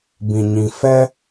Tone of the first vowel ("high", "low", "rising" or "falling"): low